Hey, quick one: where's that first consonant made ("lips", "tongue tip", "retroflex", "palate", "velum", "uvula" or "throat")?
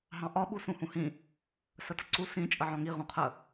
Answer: throat